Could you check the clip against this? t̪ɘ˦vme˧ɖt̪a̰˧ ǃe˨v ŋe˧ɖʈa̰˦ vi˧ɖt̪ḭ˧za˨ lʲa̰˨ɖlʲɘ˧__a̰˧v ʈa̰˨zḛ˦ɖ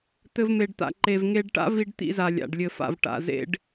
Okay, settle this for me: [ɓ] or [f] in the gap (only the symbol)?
f